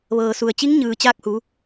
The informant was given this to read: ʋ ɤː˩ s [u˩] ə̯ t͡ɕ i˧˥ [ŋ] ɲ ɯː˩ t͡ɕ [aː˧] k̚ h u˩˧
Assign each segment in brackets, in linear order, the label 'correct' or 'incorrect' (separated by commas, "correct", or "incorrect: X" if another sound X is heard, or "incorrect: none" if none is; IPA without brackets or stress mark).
correct, correct, correct